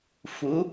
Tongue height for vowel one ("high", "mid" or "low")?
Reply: high